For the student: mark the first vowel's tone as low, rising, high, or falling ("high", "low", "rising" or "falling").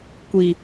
low